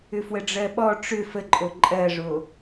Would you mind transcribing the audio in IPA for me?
ʏfwəɖ͡ʐɜɓɔ ʈ͡ʂʏ fəǃʼo ǃʼɜʐo

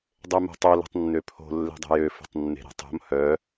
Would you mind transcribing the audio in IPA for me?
dˤømo̤tˤo lɛ̤tˤnːøpʰo̤ lːe̤dˤe̤jø fo̤tˤnːe̤ɾɛ̤tˤo̤m hœ

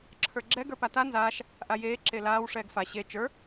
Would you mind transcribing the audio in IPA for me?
ǁʰə˞ɡ͡ǁɛ ɡə˞pata nzaːʃ | ʔajeː ǁelaːw ʂɛːɡfa ɕe t͡ʃə˞

